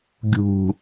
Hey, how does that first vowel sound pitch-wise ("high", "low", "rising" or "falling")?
low